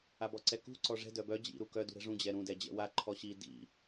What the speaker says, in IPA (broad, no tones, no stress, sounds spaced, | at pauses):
a b ɔ ǀ ɛ k ṳ ǀ ɔ ʐ ɛ̤ d œ b œ d͡ʑ ḭ ɾ u k œ d ṳ ɾ ɛ̤ ʐ ũ d͡ʑ ɛ ɾ ũ d ɛ d͡ʑ ɛ̰ w a ǃʰ ɔ ɕ i d ḭ